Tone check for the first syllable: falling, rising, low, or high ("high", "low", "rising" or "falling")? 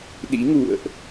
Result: rising